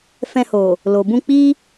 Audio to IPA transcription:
f ɛ̃˧ h o˨ | l o˨ b ũ˧ k͡p i˦

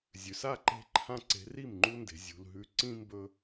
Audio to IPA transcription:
zʲ ʉ˩ s a˥˩ ǃ e̤˦ ǃʰ ã˦ ǀ e̤˨˦ r i˥˩ m ŋ͡ǃ u˦ n d e̤˩ zʲ ṳ˩ l ɦ ʉ˨˦ ǀ ĩ˦ m b ɵ˦

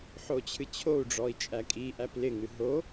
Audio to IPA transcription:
ħ o t͡ɕʰ ɨ t͡ɕʰ o u̯ ɖ͡ʐ ɔ i̯ t͡ʃʼ æ kʼ i ʔ æ p l ɪ ŋ ɨ ɦ o

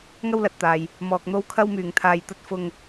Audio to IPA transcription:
ŋ ɐ˥ w l ɐ˨ t̚ t̪ aː˨ j | m ɔː˧ k̚ n̪ o˥ w kʰ ɐ˥ w m yː˨ ŋ t̪ʰ aː˧ j t̪ ɐ˥ t̚ f ʊ˧ ŋ

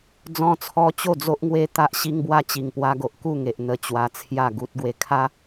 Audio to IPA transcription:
d͡z ɔ̃˧ t͡sʰ ɔ˧ t͡ɕ o˥˧ d͡z o˦ ʔ ŋ w e˦ t̪ a˦ ʔ ɕ i˦ ŋ b w a˦ t͡ɕ i˨˩ ŋ p w a˧ ɡ o˨ ʔ k u˥˧ ŋ e˨ ʔ n̪ ə˨˩ t͡ɕ w a˧ t͡sʰ j a˥˧ ɡ u˦ t̚ ɡ w e˧ kʰ a˦

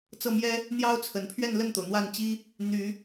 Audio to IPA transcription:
t͡s ɤ˥˩ m j ɛ˥ | n̪ j ɑ˥ ʊ̯ t͡sʰ ə˨˩ n pʰ ɥ ɛ˥˧ n l ə˥˩ n t̪ o˩ ʊ̯ n̪ w a˥˩ n t͡ɕ i˥ | n̪ y˨˩˦

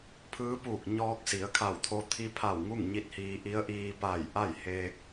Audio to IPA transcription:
pʰ ɯː˧˥ p uː˧˩ k̚ ɲ ɔː˧ k̚ s i˩˧ ə̯ kʰ a˧˩ w t̪ʰ o˧ t̪ʰ i˧ pʰ a˧˩ w ŋ u˥˨ ŋ ɲ i˧˥ t̚ h iː˧ ʔ i˧˥ ə̯ ʔ iː˧ p a˧˩ j ʔ a˥˨ j h eː˧ k̚

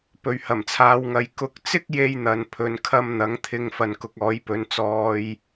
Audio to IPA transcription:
p ɵ˨ ɥ h ɐ˨˩ m t͡sʰ aː˨˧ w ŋ ɐ˨˧ j k ʊ˨˥ k̚ t͡s ɪ˥ k̚ j e˥ j n̪ ɐ˨ n pʰ ɵ˨˧ n kʰ ɐ˥ m n̪ ɐ˨˥ ŋ t̪ʰ ɪ˧ ŋ f ɐ˨ n k ʊ˨˥ k̚ ɔː˨˥ j p ɵ˨˥ n t͡s ɔː˧ j

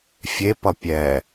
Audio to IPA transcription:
fʲ e p ʌ pʲ ɛ

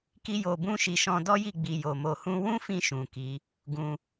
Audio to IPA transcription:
k i˦ j o˧ b ũ˦ ʃ i˧ ʃ ɔ̃˧ d ɔ˦ j i˦˨ ɡ͡b i˨ j o˨ m o˧ h ũ˦ w ũ˦ f ĩ˧ ʃ ũ˨ k i˨˦ | ɡ ũ˧

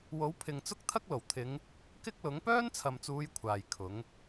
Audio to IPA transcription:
w o˨˥ w pʰ ɪ˨ ŋ t͡s ʊ˥ k̚ t̪ʰ ɐ˥ k̚ l o˨˩ w t̪ʰ ɪ˨˧ ŋ | k ɪ˥ k̚ l ʊ˨˥ ŋ p œː˥ n t͡sʰ ɐ˨ m t͡s uː˨˧ j kʷʰ aː˨ j kʰ ʊ˨˥ ŋ

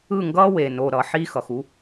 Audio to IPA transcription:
ɯ˦˨ ŋ ɡ ʌː˦ w e˨ n o˨ ɾ ʌ˨ ħ i˦ x ʌ˨ x u˧

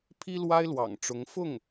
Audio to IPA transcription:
pʰ i˥ l w a˥ ɪ̯ l w ɑ̰˨˩ ŋ ʈ͡ʂ ʊ˧˥ ŋ f ʊ˥˩ ŋ

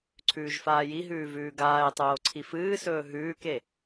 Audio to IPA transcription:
ǀʰ ʉː ʒ f aː j i ɦ ʉː v ʉː ɡ aː e̯ tˤ oː ǀʰ i f ɨː s ɵː ɦ ʉː k e

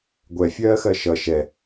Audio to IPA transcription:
ɡʷ ɛ fʲ ɜː x ɜ ʃ ʌ ʃ ɛ

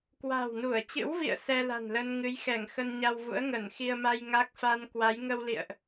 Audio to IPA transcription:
k w a̤˨˩ w n u˧˩ ə̯ t͡ɕ ɨ̰˧˥ w v ḭ˧˨ ə̯ s ɛ˧ l a̤˨˩ n l ə˧ n ŋ ɨ˨˦ j x ɛ˧˩ ŋ x ə˧ n ɲ a˧ w v ṵ˧˥ ə̯ ŋ ə˧˩ n x i˧ ə̯ m a˧ j ŋ a˦˥ k̚ f a˧ n k w a˨˦ j ŋ ə˧ w l ḭ˧˨ ə̯ ʔ

